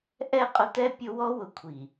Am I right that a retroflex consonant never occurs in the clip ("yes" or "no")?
yes